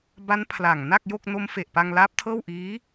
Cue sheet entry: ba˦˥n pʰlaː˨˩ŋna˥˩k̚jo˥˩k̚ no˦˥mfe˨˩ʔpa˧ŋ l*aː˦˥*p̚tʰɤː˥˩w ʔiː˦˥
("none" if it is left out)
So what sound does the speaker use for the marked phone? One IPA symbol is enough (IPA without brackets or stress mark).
aː˦˥